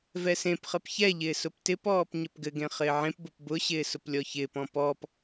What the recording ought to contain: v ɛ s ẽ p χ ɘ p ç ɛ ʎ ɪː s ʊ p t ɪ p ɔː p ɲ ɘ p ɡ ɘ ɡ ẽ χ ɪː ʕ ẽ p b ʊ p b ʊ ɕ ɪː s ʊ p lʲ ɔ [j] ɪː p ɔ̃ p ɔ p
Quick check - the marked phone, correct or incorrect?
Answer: incorrect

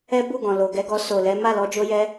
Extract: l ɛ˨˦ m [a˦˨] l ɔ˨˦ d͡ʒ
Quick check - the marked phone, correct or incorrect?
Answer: correct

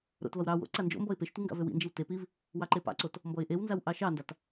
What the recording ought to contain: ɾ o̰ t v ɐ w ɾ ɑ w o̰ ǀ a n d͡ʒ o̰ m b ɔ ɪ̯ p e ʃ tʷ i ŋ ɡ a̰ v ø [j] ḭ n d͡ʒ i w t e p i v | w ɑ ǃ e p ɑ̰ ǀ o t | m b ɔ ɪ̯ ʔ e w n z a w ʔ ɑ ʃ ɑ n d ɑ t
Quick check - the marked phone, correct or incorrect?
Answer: incorrect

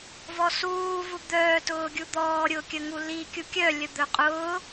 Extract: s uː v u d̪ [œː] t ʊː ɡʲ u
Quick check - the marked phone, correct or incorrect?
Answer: correct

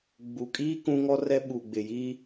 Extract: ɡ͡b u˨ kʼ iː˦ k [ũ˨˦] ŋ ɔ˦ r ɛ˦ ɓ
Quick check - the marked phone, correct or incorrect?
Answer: incorrect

